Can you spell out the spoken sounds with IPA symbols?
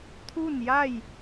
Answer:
t̪ʰu˥˨nja˥˨j

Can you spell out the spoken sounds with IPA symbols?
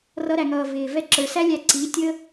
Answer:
rʌ˧ɾæ˨ŋʌː˨ vɪː˨ vɛ˧ǁə˞˨sæ˦lʲæ˧ ǀi˨˦tʲə˦

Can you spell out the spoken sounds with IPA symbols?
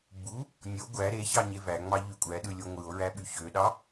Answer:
ɡ͡bu | nʲo ɡʷæ ɾeçɑ ɲevæŋ͡mɑ ʎykʷʼæɗɯ lʲoŋʷɯo̯ɹæ ɓyçøɗɑ

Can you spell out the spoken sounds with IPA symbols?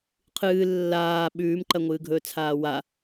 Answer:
qʰɨː lːaː ɓʉːmǃɐŋʷɨːɡʱɵː t͡sʰaːwa

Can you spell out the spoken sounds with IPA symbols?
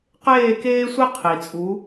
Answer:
qeː˦˨keː˦sʷi˦ qʰi˨ t͡sʼu˨˦

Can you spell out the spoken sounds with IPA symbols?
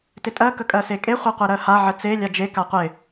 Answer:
tɪtʼɜ kəkʼɜsekʼe χʷeqʷeɾɜha ʕət͡se lʲad͡ʒe kaqʷɪ

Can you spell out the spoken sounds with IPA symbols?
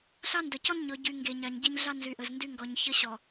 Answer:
ɬɑ˦ndɐ˨cɔ˦n ɲɔ˨ɟy˨ ŋɡe˨ɲɑ˨ɲ ɟe˦ɲɮɑ˦ nzy˨ʔə˨zndy˦ ŋɡɔ˨ɲçə˦ɕɔ˨

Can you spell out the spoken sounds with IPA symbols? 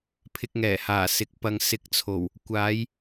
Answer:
pʰɪ˧k̚ŋɛː˨˩ haː˨˩sɪ˨˥k̚ pɐ˧ŋ sɪ˧k̚t͡sʰo˨˩w | kʷaː˨˧j

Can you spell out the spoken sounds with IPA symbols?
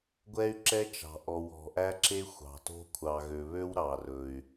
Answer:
ɡʷɛ˦y̯ǁɛ˦t͡ʃɑ̤˨ ʔɔ˨w ɔ̤˨ʔæ˦ǁe˦ xʷɑ̤˨to̤˦ kʷʰɑ˨ɣø˨βø˦w ɾɑ˨rɵ˨y̯

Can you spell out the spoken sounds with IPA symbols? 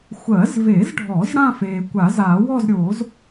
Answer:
xʷɜ˨˩˦zve˨˩˦zɖʱɔ˨˩˦z ɽã˥˧feː˩ kʷa˨˩˦zaː˨˩˦wɔ˥˧zɾʲoː˨˩˦z

